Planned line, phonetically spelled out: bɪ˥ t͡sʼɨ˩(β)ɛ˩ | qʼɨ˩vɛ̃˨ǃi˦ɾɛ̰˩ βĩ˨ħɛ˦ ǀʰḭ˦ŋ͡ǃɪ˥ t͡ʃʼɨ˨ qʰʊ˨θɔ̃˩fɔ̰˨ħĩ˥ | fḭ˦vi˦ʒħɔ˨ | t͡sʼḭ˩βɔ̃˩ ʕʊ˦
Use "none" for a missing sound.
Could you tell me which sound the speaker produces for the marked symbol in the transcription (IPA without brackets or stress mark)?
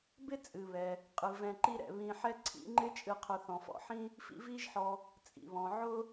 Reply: β